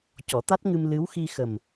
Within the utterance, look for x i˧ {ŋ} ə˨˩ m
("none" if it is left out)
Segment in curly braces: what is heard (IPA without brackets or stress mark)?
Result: x